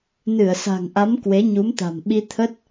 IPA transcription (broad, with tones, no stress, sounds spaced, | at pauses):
n ɨ˧˩ ə̯ s a̤˨˩ ŋ ʔ a˨˦ m k w e˨˦ ɲ u˨˦ m t̪ a̤˨˩ m ɓ i˧ t̪ʰ ə˦˥ t̚